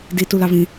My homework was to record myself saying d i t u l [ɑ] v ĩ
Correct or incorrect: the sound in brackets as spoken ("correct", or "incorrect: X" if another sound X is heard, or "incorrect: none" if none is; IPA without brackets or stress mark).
correct